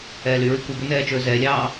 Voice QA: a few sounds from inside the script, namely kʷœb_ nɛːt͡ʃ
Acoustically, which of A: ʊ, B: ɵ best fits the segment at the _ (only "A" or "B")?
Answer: B